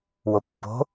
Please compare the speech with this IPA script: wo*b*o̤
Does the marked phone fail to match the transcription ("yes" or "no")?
yes